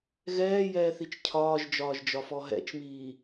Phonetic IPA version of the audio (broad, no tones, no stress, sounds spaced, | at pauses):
ɣ ɛː j ɛː θ i t͡ʃ cʰ ɒː ʒ d͡ʒ ɒː ʒ d͡ʒ ɒ f ɔ ɦ ɛ̰ t͡ʃ m iː